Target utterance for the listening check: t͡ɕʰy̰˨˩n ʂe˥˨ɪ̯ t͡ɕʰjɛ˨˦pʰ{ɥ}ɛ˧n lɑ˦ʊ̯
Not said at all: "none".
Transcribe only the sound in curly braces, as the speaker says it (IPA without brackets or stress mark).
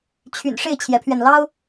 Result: ɥ